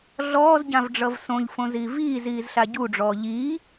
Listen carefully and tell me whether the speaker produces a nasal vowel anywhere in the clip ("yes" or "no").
yes